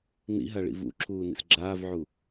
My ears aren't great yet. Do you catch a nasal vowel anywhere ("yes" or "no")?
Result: no